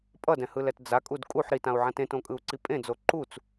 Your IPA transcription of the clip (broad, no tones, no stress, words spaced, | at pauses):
pʼʌdɛ̃hɯlɛt d͡zakʼud kʼuħ ɾitãu̯ʕãt ẽtõkʼɯu̯ǀi pʼẽd͡zo ǃut͡s